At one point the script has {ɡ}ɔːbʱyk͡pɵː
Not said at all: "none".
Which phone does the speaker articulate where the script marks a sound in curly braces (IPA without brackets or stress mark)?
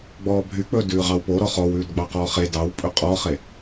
ɡ͡b